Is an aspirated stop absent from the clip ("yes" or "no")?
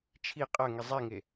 no